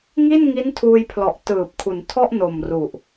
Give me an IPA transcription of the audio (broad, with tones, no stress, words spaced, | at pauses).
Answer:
ŋi˥˩nŋi˦˥n tʰuː˧jpʰlɔ˨˩ʔ tɯː˨˩p̚kʰu˩˦n tʰɔ˥˩ʔno˨˩m ru˨˩ʔ